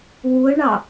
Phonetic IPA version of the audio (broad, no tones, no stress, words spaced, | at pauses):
wuə̯ɳɑ